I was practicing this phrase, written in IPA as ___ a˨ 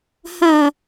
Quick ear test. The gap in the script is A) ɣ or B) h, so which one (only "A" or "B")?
B